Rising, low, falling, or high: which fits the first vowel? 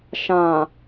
low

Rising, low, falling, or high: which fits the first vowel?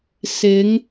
rising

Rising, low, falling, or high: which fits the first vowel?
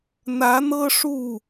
rising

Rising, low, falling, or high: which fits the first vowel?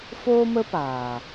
high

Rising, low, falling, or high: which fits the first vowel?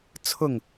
falling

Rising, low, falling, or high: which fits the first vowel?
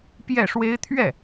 falling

